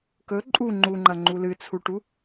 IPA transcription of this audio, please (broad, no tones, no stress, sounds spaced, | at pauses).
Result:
k ɵ ǃʼ u ŋ͡ǃ u ŋ͡ǃ ɐ ŋ͡ǃ u l ɨ t͡sʰ u ʈ u